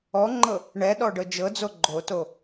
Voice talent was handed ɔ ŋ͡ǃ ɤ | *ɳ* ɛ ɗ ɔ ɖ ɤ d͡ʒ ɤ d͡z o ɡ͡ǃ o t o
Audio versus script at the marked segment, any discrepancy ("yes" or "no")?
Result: no